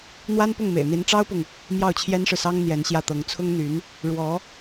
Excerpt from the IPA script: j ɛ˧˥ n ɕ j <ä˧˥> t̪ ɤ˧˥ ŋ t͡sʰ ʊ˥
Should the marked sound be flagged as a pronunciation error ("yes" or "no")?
yes